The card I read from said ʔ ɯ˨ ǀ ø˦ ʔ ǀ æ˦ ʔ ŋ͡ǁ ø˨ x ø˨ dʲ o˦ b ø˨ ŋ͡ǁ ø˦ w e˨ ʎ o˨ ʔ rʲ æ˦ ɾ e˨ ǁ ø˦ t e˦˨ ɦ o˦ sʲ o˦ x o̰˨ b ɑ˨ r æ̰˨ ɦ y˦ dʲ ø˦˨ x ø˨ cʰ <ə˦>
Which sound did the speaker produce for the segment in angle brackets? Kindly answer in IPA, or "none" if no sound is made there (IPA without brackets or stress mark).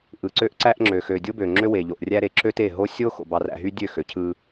ɯ˦